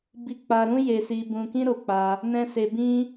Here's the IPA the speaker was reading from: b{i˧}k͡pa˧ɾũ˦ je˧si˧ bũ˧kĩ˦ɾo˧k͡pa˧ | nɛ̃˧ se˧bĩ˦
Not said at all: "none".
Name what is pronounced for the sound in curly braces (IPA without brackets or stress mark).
i˧